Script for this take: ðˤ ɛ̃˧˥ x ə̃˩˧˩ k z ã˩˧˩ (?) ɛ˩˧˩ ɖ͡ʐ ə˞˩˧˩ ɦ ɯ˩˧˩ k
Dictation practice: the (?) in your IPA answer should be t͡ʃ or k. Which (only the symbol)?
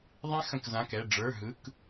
k